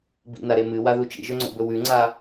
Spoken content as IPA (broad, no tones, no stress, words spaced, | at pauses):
bḭnaɾe mɨwaðu t͡ʃḭʒɵŋ͡ǀo̰bɵ wʉŋ͡ǀa